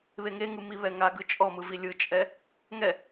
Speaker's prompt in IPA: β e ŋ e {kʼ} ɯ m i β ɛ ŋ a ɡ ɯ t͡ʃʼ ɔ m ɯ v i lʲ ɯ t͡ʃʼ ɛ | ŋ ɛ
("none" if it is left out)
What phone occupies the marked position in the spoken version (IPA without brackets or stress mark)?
ŋ